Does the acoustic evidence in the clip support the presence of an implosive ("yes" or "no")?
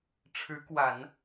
no